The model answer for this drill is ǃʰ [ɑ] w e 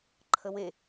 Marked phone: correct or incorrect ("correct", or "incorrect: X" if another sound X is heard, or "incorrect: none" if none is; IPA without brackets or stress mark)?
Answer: incorrect: ə